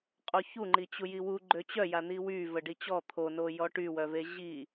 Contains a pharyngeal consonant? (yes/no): no